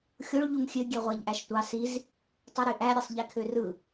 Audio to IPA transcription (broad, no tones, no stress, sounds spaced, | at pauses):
xʲ o ɭ ʎ u ŋ xʲ ø ɡʲ e ʁʷ æ ʎ ʔ æ ʃ tʷ ɑ s i z | tˤ e ɾ y ʔ æ ɾʲ e sˤ ʎ e kʰ ø r ɯ